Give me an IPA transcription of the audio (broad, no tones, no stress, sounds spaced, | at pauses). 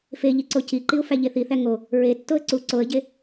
f e ʎ i ǀ o c i ǃ i ʊ̯ f æ ʎ e θ i θ æ ŋ o | ɹ e tː o ə̯ ǀ u ǀ o ə̯ ɟ e